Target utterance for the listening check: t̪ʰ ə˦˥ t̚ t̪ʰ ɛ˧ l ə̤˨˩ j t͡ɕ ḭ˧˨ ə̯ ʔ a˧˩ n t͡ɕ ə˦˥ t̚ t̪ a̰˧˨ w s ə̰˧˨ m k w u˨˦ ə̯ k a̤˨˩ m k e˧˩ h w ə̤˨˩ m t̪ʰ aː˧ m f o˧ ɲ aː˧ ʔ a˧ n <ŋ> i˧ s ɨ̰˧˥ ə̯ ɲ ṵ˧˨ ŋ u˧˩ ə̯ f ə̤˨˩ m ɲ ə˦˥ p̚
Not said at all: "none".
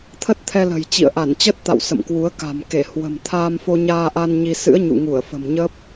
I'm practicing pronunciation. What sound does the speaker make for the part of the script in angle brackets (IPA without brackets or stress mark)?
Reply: ɲ